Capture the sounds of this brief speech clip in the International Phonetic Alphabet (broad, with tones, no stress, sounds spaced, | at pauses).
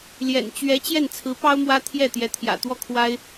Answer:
l j ɛ̰˨˩ n t͡ɕ ɥ ɛ˧˥ t͡ɕ j ɛ˥˩ n t͡sʰ ɹ̩˧˥ p ɑ˥ ʊ̯ m w ä˥ t̪ʰ j ɛ˥˩ t̪ j ɛ˧˥ t̪ʰ j ä̰˨˩ t̪ w ɔ˥˩ kʰ w a˥ ɪ̯